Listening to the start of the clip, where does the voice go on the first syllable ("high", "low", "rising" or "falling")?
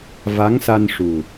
rising